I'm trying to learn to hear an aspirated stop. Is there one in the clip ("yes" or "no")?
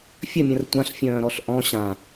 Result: no